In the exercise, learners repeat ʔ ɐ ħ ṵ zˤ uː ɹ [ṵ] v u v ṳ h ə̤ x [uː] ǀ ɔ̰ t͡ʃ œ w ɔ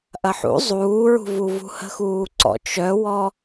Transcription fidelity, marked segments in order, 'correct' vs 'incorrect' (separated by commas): incorrect, correct